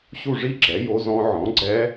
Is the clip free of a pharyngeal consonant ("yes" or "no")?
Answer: no